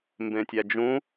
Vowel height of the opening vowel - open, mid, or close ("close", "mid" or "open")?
mid